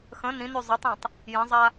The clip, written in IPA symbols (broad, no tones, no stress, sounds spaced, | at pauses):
x ə̃ n ĩ n y zˤ ʌ tˤ ĩ tˤ | j ə̃ zˤ a